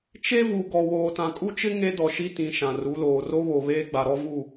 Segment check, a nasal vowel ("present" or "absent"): present